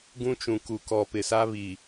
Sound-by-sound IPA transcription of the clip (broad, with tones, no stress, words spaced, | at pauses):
ɡũ˦t͡ʃũ˨ ku˨kɔ˨ pɪ˨sa˦βi˨